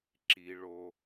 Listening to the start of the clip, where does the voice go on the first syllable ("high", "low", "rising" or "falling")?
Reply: low